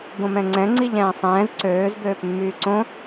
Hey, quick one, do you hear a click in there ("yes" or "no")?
yes